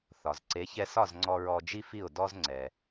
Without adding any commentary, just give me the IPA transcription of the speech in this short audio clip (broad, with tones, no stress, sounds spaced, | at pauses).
θ ɒ˩ z ǀ e˩˥ ç ɛ˧ s ɒ˥˩ z ŋ͡ǀ ɔ˧ ɹ ɔ˧ d͡ʒ i˥ f i˥˩ ʊ̯ d ɔ˥ z ŋ͡ǀ ɛ˩